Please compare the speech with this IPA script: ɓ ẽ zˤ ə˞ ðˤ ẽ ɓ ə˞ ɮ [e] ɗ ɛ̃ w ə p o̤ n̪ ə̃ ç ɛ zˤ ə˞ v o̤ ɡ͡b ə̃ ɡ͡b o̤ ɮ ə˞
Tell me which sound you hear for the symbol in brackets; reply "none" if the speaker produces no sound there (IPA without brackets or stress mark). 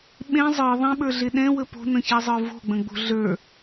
e